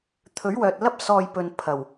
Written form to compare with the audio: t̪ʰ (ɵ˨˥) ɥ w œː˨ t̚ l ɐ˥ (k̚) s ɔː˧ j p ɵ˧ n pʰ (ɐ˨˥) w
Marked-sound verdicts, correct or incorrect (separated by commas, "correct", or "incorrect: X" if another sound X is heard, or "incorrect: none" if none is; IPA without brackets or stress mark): correct, incorrect: p̚, incorrect: ɐ˨˩